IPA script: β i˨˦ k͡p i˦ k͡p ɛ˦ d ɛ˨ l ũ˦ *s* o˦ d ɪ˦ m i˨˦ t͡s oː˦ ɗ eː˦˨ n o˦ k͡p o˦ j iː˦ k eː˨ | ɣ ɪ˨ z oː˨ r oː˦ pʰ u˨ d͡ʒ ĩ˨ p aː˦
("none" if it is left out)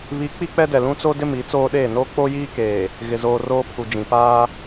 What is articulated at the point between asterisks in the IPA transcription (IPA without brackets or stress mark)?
t͡s